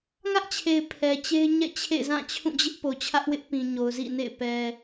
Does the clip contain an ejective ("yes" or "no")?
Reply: no